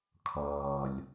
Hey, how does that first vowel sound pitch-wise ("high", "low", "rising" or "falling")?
low